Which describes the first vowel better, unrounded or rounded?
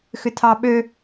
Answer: rounded